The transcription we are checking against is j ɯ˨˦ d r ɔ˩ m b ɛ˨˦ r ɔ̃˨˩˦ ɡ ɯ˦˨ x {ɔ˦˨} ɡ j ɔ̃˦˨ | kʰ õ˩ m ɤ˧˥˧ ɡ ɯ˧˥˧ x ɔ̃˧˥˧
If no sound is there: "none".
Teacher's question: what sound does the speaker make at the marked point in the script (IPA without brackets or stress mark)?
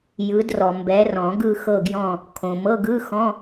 ɤ˦˨